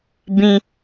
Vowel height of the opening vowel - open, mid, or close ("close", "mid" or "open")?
close